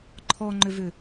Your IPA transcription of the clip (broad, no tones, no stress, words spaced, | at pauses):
ǃʰɔŋ͡ǃʏvʏ